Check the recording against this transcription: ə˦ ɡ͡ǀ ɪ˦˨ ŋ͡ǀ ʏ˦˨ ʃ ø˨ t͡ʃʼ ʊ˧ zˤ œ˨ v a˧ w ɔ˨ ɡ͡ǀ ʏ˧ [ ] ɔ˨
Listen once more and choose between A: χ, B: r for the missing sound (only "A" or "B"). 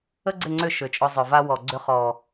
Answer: A